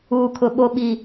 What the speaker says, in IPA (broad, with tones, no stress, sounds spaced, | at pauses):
uː˨ kʰ ʊ˨ ɓ o˨ ɓ i˨